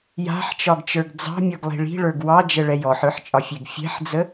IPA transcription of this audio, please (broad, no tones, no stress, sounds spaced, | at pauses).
j a̤ ħ t͡ʃ ɒ ɡ t͡ʃ ə˞ ɡ d͡z ɑ̤ mʲ ɔ ɡ lˠ i̤ ɭ i̤ ɭ ə˞ ɡ w ɑ d͡ʒ ə ɭ ɛ j ɔ ħ ə˞ ħ t͡ʃʼ ɒ fʲ ɛ ɡ fʲ ɛ̤ ħ d͡z ə